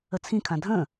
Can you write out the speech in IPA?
ə t͡sʰ ĩ kʰ ã dʱ ə̃

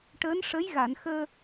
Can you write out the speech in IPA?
ʈ əː˧˥ n ʂ ə˧˥ j ɣ a˨˩˨ n x əː˧

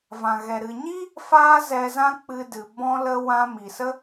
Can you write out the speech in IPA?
v ã˨ ɣ ɛ˨ ɾ ɨ˨ ɲ i˦ | f aː˦ z ɛ˧ z ã˦ k͡p ɨ˧ d ɨ˨ b ɔ̃˧ l ə˧ w ã˧ m i˨ s ə˦

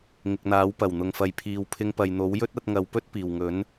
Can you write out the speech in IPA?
ŋ ɪ˨ k̚ n̪ aː˨˥ w p ɐ˨˩ w n̪ ʊ˨ ŋ f ɐ˨ j pʰ iː˨ w pʰ ɪ˧ ŋ p ɐ˨ j n̪ o˨˥ w j ɵ˥ t̚ ɐ˧ t̚ ŋ ɐ˨˧ w p ɵ˥ t̚ p iː˨˩ w ŋ ɵ˨˥ n

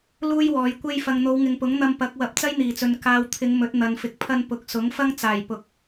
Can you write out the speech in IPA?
l uː˥ j w ɔː˨˧ j kʷ e˧ j f ɐ˨ ŋ n̪ o˨˧ w ŋ ɪ˨ ŋ p ʊ˨˥ ŋ n̪ ɐ˧ m p ɐ˨˥ k̚ w ɐ˨˥ p̚ t͡s ɐ˥ j n̪ iː˨˩ t͡s ɵ˨ n k aː˨ w t̪ʰ ɪ˨˧ ŋ m ɵ˨˥ t̚ n̪ ɐ˨ n f ɪ˨˥ k̚ pʰ ɐ˧ n p ʊ˨˥ k̚ s ʊ˨˥ ŋ f ɐ˥ ŋ t͡s aː˨˩ j p ʊ˨˥ k̚

